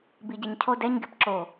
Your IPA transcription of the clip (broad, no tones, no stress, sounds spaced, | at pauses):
b i ɟ ɛ ɲ cʰ o d ɛ ɲ ɡ ɪ p ǁ o